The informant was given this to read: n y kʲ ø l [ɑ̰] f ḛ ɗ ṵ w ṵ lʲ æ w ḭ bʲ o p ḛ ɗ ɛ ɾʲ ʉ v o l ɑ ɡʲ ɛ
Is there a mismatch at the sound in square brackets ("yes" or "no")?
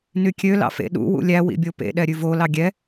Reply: no